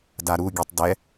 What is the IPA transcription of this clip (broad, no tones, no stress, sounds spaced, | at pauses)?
d a ɾ u ɡʲ ɛ tˤ d ɛ